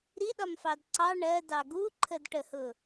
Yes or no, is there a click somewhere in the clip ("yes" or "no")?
yes